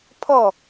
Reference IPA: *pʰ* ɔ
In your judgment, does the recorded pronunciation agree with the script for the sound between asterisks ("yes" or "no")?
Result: yes